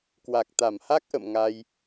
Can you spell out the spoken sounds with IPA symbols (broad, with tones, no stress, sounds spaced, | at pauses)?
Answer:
k w a˨˩ k̚ t̪ a˧˩ m h a˦˥ k̚ ʔ ə̰˧˨ m ŋ a˧ j